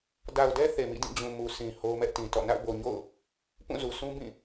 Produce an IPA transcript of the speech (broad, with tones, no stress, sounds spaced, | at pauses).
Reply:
d a˨ ʊ̯ d ɛ˦ θ e˨ m ḭ˦˨ d ĩ˦˨ d͡ʑ ũ˨ m u˨ sʰ ĩ˨ h o˦ ʊ̯ m ɛ˦ ʔ t ĩ˨ t ɔ̰˦˨ n a̰˦˨ ʊ̯ b o˨ ɲ o̰˦˨ ʊ̯ | p ũ˦˨ z u˨ sʰ ũ˦ b ĩ˦˨